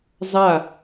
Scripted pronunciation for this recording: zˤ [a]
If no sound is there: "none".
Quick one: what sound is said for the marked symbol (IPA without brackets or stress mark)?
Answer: a